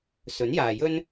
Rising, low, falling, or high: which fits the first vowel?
rising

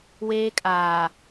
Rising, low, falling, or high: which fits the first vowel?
high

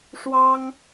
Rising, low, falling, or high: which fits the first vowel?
high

